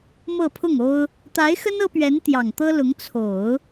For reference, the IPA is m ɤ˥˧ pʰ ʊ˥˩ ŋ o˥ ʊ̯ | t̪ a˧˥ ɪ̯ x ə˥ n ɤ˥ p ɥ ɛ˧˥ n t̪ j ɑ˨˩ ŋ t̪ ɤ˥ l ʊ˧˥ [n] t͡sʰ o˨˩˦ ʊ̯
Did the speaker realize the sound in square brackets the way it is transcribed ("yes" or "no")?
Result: no